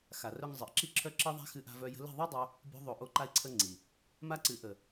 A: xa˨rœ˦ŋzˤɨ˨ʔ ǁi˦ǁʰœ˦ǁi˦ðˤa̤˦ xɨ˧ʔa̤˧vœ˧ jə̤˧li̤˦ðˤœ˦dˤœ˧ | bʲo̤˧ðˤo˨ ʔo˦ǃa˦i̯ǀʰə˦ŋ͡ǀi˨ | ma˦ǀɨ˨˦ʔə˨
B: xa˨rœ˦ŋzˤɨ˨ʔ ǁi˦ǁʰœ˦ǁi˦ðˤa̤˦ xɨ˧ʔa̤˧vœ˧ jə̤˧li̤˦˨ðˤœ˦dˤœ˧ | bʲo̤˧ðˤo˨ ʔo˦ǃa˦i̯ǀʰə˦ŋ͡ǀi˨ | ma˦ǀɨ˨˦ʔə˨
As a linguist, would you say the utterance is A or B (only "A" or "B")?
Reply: B